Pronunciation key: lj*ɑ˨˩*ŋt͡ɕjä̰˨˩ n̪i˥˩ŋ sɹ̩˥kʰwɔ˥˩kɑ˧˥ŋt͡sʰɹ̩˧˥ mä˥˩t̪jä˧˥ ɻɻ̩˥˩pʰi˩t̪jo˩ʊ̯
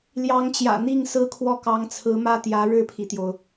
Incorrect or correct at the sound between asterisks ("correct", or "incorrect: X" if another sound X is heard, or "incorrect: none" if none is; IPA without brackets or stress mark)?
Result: incorrect: ɑ˧˥